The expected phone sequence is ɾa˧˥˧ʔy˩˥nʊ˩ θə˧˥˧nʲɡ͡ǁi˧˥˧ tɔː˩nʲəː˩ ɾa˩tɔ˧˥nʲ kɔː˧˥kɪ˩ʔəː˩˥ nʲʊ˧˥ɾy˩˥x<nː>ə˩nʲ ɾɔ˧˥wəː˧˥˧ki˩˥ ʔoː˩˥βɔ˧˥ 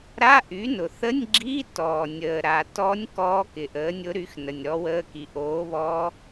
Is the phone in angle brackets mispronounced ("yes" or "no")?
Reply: yes